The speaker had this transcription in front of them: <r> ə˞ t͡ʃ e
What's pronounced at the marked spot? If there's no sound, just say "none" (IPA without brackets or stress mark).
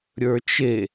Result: ɾʲ